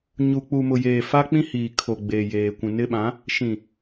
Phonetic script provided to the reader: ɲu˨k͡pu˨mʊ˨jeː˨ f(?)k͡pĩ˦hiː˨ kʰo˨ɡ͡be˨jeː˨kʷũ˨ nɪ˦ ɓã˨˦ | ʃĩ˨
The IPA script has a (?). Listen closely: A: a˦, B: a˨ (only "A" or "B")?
A